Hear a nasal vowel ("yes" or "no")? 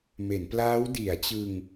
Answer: no